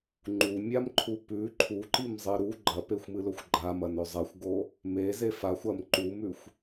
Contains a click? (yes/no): yes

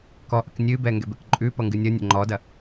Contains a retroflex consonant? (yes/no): no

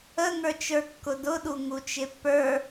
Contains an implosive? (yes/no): yes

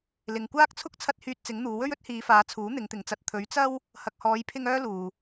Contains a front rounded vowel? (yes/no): yes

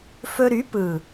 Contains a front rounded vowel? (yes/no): yes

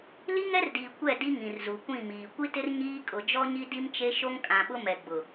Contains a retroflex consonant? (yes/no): no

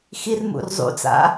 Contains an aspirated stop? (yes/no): no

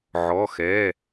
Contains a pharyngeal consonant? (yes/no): yes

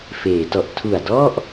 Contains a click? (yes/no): no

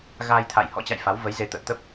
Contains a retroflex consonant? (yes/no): no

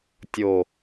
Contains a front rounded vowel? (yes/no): no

